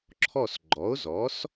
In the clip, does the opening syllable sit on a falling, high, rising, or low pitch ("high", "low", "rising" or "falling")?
falling